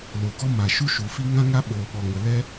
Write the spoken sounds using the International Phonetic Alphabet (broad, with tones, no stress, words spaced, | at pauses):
lo˨ɡɔ˦ma˨ ʃu˦ʃu˨fi˦ ŋã˦ŋa˦ ɓoː˧ɓɔ˧ŋə˧ lɛ˦